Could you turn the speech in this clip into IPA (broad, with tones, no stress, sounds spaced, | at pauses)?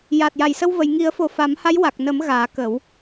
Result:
j a˨˩ t̚ j a˨˩ j s ə˧ w v ə˨˩˨ j ŋ i˨˩˦ ə̯ f o˨˩ f a˨˩˦ m h a˧˥ j w a˨˩ k̚ n ə˨˩˦ m ɣ aː˨˩˦ k ə˨˩˦ w